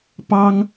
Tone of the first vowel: high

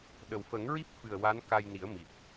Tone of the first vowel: low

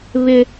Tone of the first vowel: high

